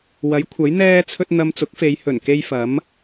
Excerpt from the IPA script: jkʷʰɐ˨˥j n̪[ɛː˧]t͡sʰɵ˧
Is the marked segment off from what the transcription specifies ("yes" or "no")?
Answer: no